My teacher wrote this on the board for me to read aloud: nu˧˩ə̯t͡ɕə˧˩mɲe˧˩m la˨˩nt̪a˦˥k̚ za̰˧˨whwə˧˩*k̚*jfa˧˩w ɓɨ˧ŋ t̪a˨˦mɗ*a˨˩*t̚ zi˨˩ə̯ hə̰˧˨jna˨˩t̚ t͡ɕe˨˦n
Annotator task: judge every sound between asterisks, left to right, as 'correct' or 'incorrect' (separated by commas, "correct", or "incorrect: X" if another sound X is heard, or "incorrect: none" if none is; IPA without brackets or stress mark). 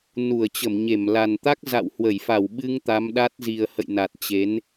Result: incorrect: none, incorrect: a˦˥